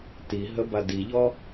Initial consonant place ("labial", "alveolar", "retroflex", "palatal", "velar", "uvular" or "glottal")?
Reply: alveolar